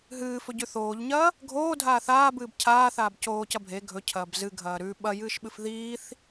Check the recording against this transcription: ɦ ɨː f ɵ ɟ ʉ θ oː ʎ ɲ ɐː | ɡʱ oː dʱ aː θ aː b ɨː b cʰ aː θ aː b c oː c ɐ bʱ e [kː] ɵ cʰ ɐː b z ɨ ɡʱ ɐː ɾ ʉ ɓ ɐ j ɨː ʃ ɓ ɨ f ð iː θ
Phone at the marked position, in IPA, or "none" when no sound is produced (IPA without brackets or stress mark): ɡʱ